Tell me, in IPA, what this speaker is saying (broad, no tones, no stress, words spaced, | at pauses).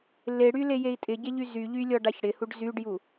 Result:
leɽy lejei̯tʼɪɟe ʎyzyʎy lʲɔɖaçɽɪhuɖ zyɖju